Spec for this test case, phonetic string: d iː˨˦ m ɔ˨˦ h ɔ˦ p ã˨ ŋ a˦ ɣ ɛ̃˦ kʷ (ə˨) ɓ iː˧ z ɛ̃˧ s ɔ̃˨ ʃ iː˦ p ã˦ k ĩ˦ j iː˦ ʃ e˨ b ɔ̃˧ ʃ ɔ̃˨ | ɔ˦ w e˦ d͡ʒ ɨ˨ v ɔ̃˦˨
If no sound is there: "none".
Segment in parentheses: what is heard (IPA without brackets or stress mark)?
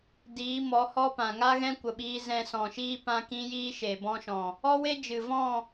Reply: ə˨